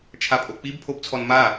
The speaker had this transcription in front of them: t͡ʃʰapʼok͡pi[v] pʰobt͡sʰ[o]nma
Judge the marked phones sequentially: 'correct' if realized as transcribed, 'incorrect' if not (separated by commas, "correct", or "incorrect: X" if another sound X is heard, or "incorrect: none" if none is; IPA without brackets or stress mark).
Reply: incorrect: b, incorrect: ɔ